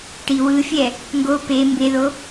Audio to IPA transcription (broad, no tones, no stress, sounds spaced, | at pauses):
ʈ i w ɯ fʲ ɛ | ŋ ɡ o p e m b e ð o